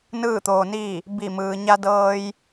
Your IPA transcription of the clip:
n ɯː˥˨ t̪ oː˧ n iː˥˨ | b i˧˩ m ɯː˩ ɲ a˧ d ɤː˧ j

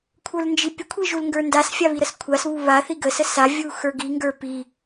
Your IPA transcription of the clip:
kʷʰ ə˞ l n d͡ʒ i pʲ ə kʷʰ i ʒ u l ŋ ɡ ə˞ n d a s fʲ a β i ɾ ə s kʷʰ a s β u β a θ i ɡ ə s ə s a vʲ u x ə˞ ɡ i ŋ ɡ ə˞ p i

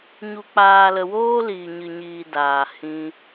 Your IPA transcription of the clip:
ɲ u˨ k͡p aː˨ l ə˨ w oː˦ l iː˨ ɲ ɨ˨ ɲ iː˨ d aː˨ h ĩ˧

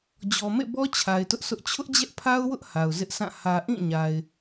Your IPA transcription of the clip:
d͡ʑ ɔ˨ m ḛ˦˨ b ɔ˦ t͡ɕʰ a˨ ɪ̯ t ʊ˦ ʔ sʰ ʊ˦ ʔ t͡ɕʰ ʊ˦ ʔ d͡ʑ ɛ˦ ʔ pʰ a˦ ʊ̯ w ʊ˦ ʔ h a˨ ʊ̯ z ɪ˦ ʔ sʰ ã˦˨ h ä˨ ʔ ĩ˦˨ ɲ a˨ ɪ̯

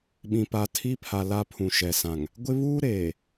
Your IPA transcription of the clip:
ɓ ĩ˨ p a˨ tʰ i˦ pʰ a˨ l a˦ pʰ ũ˨ ʃ ɛ˨ s ã˨ ŋ | ɡʷ ɪ˦ β uː˦ ɾ eː˨

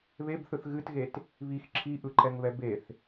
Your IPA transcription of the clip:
β e b θ ɯ θ ɣ ɨ t ɣ e t | β i x ǁʰ i ʔ ɯ ǃ ɛ ŋ β ɛ b e θ

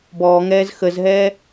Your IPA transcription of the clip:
b ɔː ŋ ɛː z x ə z ɦ ɛː

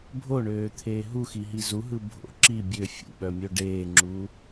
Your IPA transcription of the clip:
bʱ o ɳ øː t̪ʰ eː ɦ u x i ɦ i z u ɦ ɯ bʱ o̰ ǁ i bʲ ø fʲ ṵ ɓ œ mʲ o ɖ eː ŋ͡ǁ u

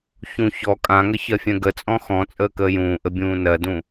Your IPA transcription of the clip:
ç ũ ç ɔ kʼ ã ŋ ə ç ɜ fʲ ɛ̃ ɡ ə t͡sʼ ɔ̃ x ɔ̃ t͡sʼ əː k əː j ũː ʔ ə bʲ ũː n ɜ d ũ

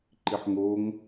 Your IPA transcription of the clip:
ǃ i ħ ŋ o ŋ

